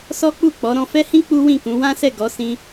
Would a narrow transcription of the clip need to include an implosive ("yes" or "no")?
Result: no